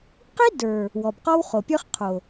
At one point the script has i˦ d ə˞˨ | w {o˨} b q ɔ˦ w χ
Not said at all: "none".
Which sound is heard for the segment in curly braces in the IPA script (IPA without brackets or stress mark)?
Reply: ɔ˨